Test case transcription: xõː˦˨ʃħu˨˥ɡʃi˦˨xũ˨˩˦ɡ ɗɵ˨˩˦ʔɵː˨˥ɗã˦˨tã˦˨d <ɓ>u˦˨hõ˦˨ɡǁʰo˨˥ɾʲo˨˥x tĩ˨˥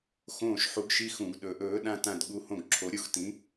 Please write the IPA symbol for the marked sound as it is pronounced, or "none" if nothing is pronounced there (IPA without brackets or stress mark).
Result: ɠ